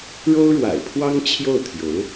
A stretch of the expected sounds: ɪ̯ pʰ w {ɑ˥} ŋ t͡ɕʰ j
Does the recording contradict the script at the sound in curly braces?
no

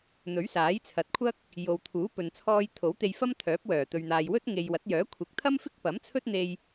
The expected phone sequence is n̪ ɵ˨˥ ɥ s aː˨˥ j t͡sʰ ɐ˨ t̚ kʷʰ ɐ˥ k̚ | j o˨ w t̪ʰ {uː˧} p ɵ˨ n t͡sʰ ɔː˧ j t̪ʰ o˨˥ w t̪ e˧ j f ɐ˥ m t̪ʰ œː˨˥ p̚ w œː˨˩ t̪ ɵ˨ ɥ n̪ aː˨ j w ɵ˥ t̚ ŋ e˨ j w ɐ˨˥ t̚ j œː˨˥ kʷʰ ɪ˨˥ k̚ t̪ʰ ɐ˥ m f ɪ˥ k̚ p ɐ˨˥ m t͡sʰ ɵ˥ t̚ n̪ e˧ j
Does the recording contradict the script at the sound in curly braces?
yes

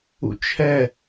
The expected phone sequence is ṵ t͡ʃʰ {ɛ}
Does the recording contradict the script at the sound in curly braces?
no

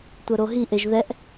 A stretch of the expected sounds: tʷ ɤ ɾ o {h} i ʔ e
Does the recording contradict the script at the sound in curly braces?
yes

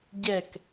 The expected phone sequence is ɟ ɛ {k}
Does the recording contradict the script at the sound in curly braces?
no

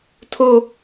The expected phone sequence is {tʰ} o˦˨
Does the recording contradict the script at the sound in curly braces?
no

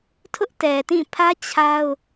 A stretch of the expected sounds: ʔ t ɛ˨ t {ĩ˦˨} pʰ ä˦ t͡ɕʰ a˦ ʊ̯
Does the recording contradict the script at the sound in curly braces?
no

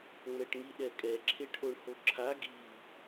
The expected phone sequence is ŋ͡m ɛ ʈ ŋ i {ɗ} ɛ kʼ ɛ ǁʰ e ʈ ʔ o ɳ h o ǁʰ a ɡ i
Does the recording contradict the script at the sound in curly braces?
no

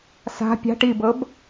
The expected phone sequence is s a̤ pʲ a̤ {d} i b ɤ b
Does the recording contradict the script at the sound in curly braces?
yes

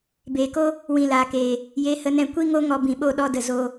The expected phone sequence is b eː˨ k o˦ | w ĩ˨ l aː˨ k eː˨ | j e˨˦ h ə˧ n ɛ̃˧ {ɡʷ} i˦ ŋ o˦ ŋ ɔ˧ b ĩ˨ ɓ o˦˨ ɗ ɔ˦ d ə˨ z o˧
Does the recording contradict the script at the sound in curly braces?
yes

